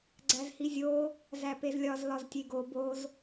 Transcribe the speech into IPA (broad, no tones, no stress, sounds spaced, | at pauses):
ɡ͡ǀ æ z h i zʲ o | z æ p e z lʲ ɒ z l ɒ z tʲ e ɡ o b o z